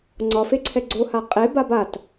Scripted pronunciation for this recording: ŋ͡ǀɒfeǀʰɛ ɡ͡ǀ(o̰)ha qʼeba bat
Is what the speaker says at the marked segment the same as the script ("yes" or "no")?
no